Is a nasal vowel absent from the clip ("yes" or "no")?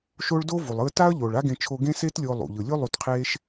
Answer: no